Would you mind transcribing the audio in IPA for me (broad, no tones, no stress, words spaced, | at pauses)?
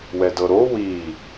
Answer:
wɛdɤɾo wi